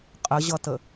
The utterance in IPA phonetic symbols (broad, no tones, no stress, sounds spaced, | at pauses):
qʼ ə ʑ ʌ t ə